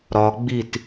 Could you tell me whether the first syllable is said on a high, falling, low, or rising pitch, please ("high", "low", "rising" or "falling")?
low